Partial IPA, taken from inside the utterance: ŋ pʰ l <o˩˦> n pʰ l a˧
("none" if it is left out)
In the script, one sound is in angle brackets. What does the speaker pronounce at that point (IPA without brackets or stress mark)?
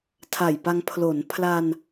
o˩˦